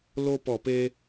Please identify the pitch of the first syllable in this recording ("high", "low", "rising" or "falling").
high